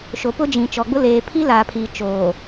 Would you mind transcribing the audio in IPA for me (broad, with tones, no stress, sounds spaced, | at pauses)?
ʃ o˨ p ʊ˦ d͡ʒ ĩ˨ t͡ʃ ɔ˨ ɡ͡b ʊ˦ l eː˨ pʰ i˦ l aː˨ pʰ iː˨ t͡ʃ oː˨